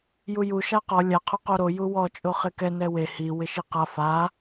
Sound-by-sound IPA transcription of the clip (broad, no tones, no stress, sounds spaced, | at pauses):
j u j u ʃ a q ɔ lʲ a qʰ ʊ q o ɾ o j u w ɔ t͡ʃʼ o χ ɪ k ɛ n ɛ w e h i w ɪ ʃ i q a f a